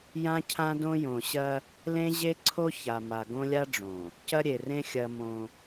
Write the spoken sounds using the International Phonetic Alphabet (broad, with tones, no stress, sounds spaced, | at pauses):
j ã˦ cʰ ã˦ d õ˦ j õ˨ ɕ ɐ˦ | l ẽ˦ ʑ e˦ ǀʰ o˦ ç a˨ m a˨ ɡ õ˦ lʲ a˦ ɖ͡ʐ õ˨ | c ɐ˦ ɾʲ e˨ r ẽ˦ xʲ ɐ˦ m õ˦